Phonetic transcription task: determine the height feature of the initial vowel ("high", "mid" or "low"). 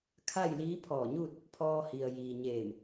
low